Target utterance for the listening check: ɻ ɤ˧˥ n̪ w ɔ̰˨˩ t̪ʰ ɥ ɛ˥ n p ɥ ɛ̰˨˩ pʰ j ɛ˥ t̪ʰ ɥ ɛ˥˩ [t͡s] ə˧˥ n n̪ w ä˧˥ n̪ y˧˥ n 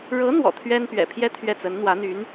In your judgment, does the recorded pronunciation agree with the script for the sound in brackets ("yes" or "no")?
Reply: yes